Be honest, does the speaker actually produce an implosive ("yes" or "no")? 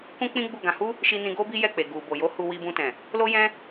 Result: no